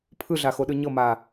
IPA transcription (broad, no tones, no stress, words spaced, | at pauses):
pʰɯɮaxoɗɯ ɲɤmaː